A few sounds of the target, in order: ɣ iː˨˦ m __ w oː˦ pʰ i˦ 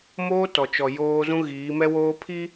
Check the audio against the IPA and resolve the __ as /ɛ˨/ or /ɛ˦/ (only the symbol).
ɛ˦